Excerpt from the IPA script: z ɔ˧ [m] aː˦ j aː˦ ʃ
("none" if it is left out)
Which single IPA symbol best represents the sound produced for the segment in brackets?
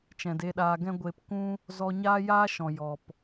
ɲ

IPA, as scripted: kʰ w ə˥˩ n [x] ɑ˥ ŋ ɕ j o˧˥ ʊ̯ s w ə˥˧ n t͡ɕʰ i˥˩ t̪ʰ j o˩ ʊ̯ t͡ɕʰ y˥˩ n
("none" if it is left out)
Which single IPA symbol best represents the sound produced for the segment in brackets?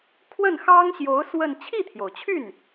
x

